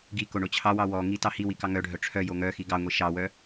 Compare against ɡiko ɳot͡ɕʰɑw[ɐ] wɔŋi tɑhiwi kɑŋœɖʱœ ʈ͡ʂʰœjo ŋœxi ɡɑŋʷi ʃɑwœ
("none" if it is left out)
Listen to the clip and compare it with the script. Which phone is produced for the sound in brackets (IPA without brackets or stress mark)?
ɑ